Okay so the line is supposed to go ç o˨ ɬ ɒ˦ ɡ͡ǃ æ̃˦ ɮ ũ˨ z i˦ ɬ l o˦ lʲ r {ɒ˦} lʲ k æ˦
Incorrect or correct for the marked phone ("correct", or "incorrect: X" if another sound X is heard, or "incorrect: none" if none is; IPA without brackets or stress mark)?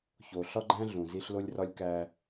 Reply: correct